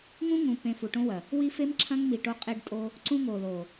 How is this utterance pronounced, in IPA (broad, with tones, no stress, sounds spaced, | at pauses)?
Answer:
ŋ ũ˦ ŋ ũ˨ p ẽ˨ f u˨ ʈ õ˦ w ɐ˨ | w i˦ f e˦ m ǁʰ ɐ̃˦ ŋ m i˨ ʈ o˦ qʼ e˦ ɖ tʼ o˦ | ǀ ũ˦ ŋ o˨ l o˨